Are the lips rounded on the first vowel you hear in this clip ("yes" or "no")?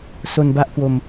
yes